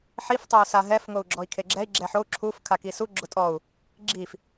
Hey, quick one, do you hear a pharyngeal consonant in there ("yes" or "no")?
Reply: yes